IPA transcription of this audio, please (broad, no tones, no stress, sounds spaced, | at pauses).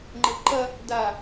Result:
ŋ͡ǃ ə v ǃ ɐ | d a